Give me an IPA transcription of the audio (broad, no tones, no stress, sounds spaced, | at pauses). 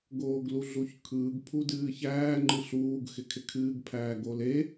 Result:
ɡ oː ɡ l u ɮ u ç kʰ ɯː ɡ pʰ u d ɨː ç æː ŋ͡ǃ ɨ ɬ uː ɡ x ɪ kʰ ɪ kʰ ɨː ɡ pʰ æː ɡ o l e